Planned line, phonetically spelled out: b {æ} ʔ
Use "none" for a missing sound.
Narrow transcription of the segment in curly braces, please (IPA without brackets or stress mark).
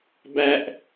æ